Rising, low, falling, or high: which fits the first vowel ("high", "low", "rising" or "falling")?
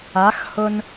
rising